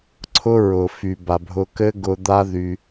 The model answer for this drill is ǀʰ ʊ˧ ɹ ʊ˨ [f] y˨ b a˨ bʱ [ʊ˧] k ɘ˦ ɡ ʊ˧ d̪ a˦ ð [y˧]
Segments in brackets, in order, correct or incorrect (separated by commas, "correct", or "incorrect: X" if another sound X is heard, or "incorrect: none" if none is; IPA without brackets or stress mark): correct, correct, correct